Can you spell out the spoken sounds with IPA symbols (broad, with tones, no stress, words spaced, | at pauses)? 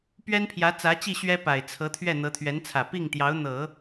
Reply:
pɥɛ˥npʰjä˧˥t͡sä˧˥t͡ɕi˥˩ ɕɥɛ˥pa˨˩ɪ̯ t͡sʰɤ˧˥t̪ʰɥɛ˥˩ n̪ɤ˧˥t̪ʰɥɛ˧˥nt͡sʰä˨˩ pi˥˩ŋt̪jɑ˧˥ʊ̯n̪ɤ˨˩˦